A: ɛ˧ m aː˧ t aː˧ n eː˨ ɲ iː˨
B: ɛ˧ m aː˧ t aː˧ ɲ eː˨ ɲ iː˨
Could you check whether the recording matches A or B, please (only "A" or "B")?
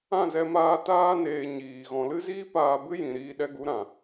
A